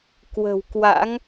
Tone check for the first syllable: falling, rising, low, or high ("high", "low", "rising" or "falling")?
low